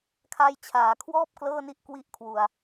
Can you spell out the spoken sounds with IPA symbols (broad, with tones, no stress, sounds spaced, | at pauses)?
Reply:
kʰ a˧ j t͡ɕʰ aː˨˩ kʰ w ɔː˥˩ p̚ k l ɤː˥˩ n i˦˥ ʔ k w i˦˥ ʔ kʰ w u˨˩ a̯